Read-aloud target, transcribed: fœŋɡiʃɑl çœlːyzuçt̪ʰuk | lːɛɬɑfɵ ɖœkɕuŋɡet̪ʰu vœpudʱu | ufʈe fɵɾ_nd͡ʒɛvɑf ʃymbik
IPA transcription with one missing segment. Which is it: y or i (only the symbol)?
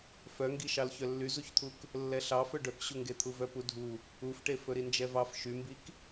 i